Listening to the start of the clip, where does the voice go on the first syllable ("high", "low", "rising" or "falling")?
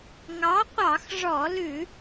rising